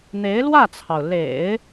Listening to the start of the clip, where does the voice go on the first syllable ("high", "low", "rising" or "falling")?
rising